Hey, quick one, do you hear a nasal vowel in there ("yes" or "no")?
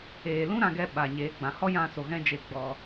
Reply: yes